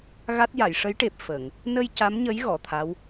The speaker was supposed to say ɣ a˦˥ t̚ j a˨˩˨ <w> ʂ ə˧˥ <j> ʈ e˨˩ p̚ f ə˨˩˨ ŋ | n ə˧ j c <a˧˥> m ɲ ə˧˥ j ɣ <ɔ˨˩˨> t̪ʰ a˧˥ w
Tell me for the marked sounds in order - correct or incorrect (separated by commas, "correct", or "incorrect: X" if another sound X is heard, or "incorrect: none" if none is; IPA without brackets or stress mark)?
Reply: incorrect: j, correct, correct, correct